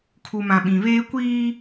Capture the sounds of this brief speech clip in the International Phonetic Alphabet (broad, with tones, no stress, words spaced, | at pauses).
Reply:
kʰu˨mã˨ɓĩ˨ βeː˦ kʷiː˦